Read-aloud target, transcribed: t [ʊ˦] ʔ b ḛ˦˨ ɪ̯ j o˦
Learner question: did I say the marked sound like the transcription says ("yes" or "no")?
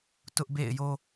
yes